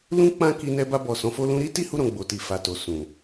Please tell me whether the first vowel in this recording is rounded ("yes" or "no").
yes